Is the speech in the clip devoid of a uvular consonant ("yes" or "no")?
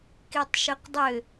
no